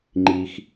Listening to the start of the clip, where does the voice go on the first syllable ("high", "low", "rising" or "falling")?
low